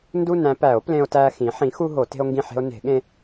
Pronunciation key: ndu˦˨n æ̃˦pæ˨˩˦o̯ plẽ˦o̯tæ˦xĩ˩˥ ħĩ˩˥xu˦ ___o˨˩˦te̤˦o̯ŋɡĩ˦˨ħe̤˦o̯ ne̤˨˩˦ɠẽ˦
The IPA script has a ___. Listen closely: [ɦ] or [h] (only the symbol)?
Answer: ɦ